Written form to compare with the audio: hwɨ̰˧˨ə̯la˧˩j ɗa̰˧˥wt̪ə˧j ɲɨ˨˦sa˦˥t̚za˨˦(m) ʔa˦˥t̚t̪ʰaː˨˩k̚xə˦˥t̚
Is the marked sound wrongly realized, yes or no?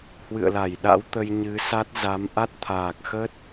no